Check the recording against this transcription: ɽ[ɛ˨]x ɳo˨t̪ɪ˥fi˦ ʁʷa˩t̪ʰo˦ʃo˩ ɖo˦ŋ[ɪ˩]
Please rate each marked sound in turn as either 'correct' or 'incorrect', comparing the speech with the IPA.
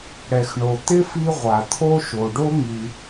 correct, incorrect

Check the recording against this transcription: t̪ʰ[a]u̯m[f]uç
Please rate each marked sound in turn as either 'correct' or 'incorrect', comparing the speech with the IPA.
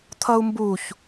incorrect, incorrect

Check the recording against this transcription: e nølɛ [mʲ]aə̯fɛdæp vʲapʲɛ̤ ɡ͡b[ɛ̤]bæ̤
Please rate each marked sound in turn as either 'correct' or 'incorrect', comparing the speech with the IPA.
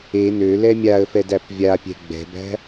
correct, correct

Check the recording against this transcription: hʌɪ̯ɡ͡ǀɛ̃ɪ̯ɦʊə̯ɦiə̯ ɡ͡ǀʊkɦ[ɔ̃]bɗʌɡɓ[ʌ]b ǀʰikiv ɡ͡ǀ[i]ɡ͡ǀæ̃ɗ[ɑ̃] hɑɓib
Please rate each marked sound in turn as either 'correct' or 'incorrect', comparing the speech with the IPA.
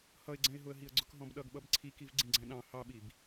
correct, correct, incorrect, correct

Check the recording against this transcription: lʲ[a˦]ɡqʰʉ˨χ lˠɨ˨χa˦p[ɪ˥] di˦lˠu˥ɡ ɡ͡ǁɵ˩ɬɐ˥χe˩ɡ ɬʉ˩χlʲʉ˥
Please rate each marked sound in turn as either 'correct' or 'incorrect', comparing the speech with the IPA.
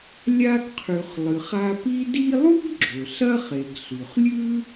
correct, incorrect

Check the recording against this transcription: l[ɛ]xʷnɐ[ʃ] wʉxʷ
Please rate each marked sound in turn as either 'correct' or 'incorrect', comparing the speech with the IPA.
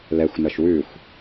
correct, correct

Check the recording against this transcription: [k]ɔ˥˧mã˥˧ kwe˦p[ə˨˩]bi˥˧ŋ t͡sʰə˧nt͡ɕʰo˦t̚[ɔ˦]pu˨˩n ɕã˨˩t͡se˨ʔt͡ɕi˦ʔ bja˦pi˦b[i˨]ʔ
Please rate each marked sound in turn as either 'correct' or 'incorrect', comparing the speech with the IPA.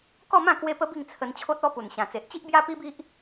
correct, incorrect, correct, incorrect

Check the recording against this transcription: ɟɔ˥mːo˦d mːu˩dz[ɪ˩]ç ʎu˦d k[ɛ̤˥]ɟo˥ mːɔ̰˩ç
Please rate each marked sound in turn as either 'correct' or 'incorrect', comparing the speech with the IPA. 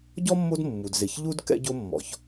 correct, incorrect

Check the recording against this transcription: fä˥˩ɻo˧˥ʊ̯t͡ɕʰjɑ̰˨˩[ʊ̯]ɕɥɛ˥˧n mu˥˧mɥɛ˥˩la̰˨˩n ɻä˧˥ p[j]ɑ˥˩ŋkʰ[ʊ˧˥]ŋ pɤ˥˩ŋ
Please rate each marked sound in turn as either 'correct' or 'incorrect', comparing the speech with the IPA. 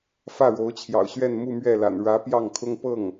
correct, correct, incorrect

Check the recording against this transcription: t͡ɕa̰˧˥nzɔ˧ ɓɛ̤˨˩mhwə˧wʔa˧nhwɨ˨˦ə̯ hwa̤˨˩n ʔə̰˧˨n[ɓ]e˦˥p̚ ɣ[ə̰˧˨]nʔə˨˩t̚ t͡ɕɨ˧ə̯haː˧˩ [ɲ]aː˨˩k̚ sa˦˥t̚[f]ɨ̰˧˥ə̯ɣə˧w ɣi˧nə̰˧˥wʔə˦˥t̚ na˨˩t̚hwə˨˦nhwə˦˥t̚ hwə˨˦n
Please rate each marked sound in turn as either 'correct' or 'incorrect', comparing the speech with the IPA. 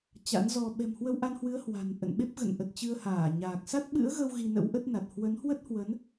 correct, correct, correct, incorrect

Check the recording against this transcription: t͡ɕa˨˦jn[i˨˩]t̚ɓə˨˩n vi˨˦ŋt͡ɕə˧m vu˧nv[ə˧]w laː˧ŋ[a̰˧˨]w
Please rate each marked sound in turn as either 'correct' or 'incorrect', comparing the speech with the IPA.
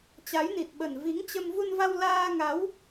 correct, incorrect, incorrect

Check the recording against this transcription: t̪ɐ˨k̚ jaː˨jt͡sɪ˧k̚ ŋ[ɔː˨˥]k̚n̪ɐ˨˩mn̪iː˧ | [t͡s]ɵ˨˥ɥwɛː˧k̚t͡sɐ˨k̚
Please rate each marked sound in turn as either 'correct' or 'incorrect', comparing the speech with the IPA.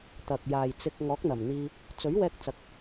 correct, correct

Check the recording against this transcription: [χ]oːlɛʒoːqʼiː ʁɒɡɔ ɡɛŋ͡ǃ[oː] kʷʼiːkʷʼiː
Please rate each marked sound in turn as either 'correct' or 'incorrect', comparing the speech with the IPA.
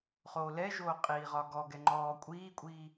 correct, incorrect

